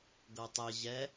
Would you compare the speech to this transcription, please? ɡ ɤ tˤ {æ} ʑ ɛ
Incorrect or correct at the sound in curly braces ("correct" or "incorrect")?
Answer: incorrect